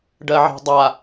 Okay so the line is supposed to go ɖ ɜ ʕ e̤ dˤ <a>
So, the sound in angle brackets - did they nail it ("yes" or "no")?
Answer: yes